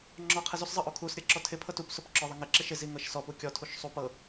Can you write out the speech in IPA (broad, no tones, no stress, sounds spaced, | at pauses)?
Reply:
ŋ͡ǁ ɔ qʰ ɪ z u s zˤ ɤ ʔ o kʰ u s ɾʲ ɤ ǁ ɔ tʰ ɪ pʰ ɤ t u p s o p ǁ ɔ ðˤ ɪ ŋ ɪ ǁ ɪ ʃ ɪ z i ŋ ɤ ʃ s ɔ p u kʲ ɔ tʰ u ʃ sˤ u p ɤ